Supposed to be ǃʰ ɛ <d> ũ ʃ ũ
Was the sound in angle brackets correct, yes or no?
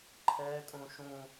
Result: no